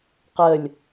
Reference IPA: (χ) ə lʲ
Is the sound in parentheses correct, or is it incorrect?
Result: incorrect